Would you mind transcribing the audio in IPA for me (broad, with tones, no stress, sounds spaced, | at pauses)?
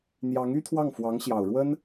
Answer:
n̪ j ɑ˧˥ ŋ y˥ t̪ʰ w ɑ˥˩ ŋ f w ɑ˧˥ ŋ ɕ j ɑ˨˩ ʊ̯ ɻ w ə˥ n